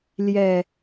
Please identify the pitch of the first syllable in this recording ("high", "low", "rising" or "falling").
low